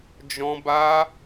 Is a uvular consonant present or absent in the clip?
absent